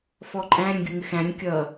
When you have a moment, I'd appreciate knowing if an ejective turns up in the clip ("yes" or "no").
yes